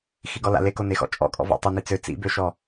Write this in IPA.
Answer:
x i ɡ ɔ l a̰ l e k o n e x ɔ̰ t͡ʃʼ ɔ̰ kʼ ɔ̰ v ɔ̰ tˤ u n i t͡s ø t͡s ḭ b ø ʃ ɔ

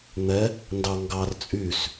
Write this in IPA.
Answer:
n̪ ɛ | n d ɑ ŋ ɡ ɑ r t͡sʼ y s

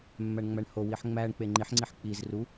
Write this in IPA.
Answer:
mː æ ɳ ŋ͡m æ ɳ h o w i ħ ŋ͡m æ ɳ k͡p e ŋ͡ǃ i ħ ŋ͡ǀ i ħ k͡p i z r u

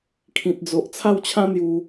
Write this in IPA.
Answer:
kʰ ĩ˦ t̚ d͡z o˦ ʔ t͡sʰ a˥˧ w t͡ɕʰ ã˦ n̪ j u˧

